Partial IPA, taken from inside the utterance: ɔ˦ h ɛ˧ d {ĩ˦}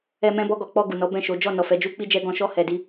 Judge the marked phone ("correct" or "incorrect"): incorrect